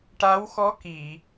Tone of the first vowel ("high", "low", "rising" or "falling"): rising